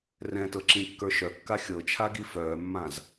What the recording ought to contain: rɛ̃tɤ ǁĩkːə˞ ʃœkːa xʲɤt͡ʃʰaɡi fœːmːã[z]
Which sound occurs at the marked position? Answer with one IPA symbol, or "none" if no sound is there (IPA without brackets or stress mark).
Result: z